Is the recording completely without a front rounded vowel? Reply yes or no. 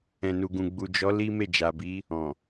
yes